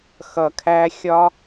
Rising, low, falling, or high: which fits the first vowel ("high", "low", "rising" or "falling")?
low